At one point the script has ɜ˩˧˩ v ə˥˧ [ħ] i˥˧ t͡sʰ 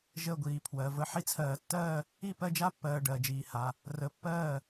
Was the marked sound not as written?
no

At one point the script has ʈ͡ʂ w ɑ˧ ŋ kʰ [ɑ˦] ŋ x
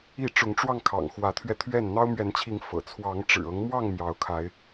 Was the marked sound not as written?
yes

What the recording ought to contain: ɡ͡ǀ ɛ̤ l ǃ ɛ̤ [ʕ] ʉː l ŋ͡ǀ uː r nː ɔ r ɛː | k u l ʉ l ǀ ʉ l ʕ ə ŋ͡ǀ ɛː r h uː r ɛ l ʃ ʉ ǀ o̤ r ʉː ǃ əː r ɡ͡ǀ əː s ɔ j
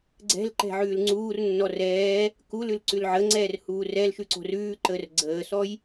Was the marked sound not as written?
no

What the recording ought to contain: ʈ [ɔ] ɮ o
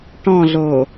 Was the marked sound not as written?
yes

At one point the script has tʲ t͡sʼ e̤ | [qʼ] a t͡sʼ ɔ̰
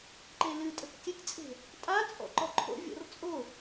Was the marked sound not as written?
yes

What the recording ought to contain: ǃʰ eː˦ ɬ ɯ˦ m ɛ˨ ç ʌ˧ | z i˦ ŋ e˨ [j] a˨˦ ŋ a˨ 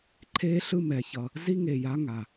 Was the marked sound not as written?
no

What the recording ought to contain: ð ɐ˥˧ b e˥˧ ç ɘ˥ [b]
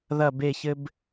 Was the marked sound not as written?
no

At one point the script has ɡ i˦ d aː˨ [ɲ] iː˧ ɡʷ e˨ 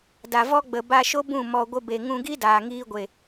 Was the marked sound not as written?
yes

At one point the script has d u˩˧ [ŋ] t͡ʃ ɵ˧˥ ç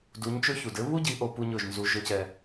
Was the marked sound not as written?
yes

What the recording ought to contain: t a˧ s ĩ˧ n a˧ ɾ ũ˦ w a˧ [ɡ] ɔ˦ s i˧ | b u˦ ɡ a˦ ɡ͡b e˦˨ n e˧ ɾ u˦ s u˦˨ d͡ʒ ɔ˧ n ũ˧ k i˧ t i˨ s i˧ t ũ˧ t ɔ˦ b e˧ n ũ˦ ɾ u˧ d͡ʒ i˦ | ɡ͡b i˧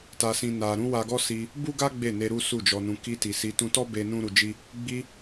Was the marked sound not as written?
no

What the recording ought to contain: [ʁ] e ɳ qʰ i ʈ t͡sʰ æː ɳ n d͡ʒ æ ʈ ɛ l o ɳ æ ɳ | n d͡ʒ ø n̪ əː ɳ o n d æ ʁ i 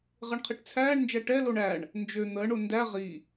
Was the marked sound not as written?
no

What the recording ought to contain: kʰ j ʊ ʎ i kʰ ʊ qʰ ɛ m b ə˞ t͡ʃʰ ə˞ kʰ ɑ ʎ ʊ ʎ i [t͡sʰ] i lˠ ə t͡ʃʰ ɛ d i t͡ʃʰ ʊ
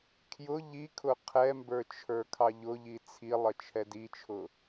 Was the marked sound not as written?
no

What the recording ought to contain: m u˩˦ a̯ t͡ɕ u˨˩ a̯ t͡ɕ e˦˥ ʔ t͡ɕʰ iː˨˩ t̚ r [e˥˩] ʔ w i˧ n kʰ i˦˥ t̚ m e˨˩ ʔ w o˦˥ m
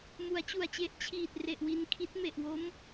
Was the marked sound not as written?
yes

